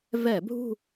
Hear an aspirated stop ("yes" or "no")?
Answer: no